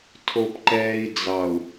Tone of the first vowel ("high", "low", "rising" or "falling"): high